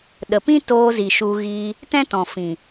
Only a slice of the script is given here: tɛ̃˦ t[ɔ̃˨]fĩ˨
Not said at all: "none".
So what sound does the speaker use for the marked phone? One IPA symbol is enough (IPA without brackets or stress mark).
ɔ̃˨